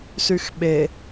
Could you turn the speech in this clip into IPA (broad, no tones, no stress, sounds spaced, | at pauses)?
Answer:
s y x ɓ e